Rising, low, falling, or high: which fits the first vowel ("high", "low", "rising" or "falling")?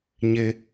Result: high